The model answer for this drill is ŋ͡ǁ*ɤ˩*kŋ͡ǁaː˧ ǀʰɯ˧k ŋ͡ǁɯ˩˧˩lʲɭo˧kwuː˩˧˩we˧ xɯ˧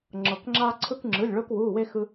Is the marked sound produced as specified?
yes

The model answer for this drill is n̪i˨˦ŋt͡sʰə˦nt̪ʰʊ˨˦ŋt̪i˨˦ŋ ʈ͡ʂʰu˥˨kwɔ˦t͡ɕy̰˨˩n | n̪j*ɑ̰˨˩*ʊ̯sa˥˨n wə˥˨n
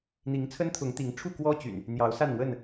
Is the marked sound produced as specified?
no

